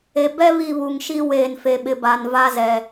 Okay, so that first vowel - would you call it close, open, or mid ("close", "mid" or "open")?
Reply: mid